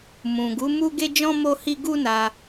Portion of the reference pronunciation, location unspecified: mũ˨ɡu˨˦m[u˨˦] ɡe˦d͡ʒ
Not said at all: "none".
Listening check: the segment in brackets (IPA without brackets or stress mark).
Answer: u˦